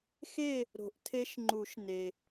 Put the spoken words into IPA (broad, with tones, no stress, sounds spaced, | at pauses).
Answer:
x e˥˨ | ɾ o̤˨˩˦ ʔ tʰ e˦˥ ʃ ŋ͡ǃ u˨˩˦ ʃ n e˩